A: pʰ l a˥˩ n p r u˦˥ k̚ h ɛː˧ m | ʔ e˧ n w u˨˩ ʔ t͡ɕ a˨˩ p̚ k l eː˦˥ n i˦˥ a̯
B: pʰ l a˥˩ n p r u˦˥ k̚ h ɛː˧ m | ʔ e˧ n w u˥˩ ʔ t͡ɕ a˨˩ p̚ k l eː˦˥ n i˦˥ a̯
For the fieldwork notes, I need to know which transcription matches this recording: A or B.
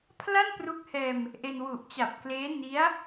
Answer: A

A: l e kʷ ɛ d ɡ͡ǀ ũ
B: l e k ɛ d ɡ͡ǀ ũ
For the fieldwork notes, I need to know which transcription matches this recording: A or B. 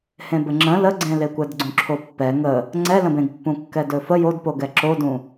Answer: A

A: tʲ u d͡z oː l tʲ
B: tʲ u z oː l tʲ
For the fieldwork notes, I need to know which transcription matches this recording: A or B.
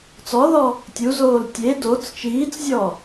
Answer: B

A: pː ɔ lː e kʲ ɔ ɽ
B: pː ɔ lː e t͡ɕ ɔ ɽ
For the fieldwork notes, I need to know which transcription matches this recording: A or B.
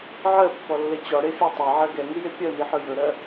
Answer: B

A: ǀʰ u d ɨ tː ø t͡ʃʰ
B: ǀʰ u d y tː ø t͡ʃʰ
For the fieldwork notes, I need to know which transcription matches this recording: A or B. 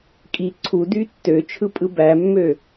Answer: B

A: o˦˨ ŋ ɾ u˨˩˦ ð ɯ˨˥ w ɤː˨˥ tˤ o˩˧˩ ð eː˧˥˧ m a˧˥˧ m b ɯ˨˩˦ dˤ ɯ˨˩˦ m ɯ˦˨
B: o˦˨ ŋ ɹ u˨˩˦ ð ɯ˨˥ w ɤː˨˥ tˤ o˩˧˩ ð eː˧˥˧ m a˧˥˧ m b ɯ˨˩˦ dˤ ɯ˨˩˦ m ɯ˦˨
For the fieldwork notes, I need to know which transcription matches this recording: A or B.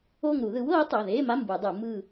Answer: A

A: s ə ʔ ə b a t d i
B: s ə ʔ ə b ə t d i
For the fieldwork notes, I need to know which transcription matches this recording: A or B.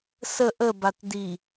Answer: A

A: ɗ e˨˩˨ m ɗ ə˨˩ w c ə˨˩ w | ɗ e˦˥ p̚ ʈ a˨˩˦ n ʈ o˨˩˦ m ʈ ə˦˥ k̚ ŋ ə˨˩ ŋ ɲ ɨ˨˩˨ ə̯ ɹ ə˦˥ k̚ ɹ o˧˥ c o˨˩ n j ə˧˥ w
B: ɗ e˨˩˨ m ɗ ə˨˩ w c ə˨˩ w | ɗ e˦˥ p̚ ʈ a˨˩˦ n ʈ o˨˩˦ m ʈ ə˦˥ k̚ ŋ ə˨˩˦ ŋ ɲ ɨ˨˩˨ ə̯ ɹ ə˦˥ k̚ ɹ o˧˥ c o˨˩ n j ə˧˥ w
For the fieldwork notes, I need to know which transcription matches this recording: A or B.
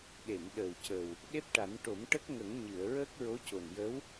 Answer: B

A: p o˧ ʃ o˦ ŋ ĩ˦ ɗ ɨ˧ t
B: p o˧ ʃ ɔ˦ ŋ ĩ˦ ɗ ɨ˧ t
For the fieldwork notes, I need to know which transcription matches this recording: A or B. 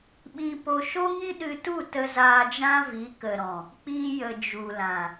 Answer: A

